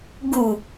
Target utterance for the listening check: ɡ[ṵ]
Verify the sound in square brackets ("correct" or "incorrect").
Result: incorrect